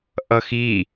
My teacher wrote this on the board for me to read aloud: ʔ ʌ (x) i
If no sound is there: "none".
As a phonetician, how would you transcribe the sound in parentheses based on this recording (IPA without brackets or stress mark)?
x